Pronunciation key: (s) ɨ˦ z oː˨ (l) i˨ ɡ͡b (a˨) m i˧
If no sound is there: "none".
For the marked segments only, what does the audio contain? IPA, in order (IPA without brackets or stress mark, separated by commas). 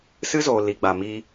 s, l, a˨